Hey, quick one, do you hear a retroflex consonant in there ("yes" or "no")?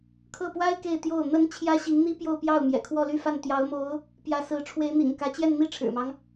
yes